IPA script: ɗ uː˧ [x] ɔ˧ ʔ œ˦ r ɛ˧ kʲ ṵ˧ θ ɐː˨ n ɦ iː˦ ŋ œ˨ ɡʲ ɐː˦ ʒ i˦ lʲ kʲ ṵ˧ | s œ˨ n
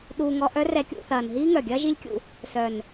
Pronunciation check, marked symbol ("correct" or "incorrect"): incorrect